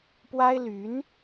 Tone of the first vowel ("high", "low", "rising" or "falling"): high